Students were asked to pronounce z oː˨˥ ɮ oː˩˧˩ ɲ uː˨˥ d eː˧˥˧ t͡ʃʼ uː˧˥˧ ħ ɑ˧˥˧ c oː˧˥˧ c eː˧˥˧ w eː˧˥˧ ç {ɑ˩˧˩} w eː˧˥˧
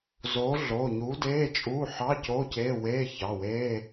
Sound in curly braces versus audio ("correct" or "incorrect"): correct